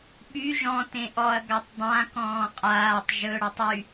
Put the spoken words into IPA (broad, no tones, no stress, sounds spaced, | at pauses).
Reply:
ɓ y ʒ ɔ̃ t ẽ ʔ ɔ ɐ̯ ɡ a tˤ dˤ ã k ɔ̃ː qʼ aː tˤ ʒ ɵ ɽ ɔ tˤ y